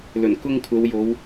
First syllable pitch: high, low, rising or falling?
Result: low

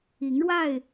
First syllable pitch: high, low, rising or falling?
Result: rising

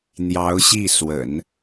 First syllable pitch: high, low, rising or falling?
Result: rising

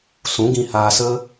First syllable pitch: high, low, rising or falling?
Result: rising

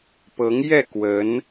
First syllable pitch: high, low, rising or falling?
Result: rising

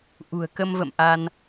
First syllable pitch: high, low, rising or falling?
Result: low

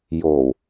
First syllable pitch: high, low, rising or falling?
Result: low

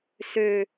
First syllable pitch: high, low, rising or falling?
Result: high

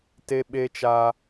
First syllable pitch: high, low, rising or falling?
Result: high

